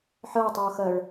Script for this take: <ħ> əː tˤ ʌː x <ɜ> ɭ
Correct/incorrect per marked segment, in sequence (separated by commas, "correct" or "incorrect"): correct, correct